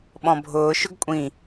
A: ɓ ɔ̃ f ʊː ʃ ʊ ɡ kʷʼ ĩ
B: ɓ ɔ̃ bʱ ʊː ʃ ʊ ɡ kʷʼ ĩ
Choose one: B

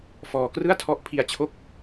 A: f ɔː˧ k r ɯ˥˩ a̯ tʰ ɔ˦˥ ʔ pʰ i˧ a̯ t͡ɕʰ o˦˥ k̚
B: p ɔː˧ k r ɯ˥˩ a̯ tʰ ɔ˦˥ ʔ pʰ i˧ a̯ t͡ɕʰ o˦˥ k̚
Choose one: A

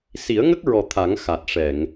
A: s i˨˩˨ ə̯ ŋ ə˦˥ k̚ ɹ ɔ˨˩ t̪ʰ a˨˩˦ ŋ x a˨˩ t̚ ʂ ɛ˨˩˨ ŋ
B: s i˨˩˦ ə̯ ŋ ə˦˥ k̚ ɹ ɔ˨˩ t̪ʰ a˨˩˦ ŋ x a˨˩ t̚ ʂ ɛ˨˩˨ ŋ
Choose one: B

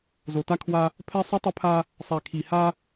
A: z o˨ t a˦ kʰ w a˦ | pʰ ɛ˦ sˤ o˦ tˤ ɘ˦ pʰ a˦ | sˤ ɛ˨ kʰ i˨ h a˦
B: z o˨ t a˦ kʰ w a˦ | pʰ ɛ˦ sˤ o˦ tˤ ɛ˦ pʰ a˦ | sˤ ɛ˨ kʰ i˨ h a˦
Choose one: A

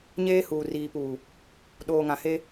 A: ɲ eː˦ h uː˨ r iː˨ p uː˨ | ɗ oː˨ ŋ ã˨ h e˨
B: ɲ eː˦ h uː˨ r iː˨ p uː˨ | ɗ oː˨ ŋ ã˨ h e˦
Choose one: B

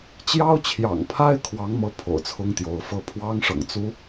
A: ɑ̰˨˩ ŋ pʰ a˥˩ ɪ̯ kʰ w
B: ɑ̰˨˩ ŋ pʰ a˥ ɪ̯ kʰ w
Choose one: B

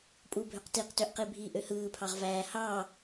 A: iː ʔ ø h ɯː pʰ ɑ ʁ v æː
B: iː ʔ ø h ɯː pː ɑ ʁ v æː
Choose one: A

